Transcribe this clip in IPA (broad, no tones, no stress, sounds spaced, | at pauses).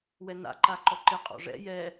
w ɛ n a̰ ǃ a ǃ ɔ ǃ ɪ qʼ ɔ̰ ʐ ɛ̰ j ɛ